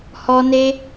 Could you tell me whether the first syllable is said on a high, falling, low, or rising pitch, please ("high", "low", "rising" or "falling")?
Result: high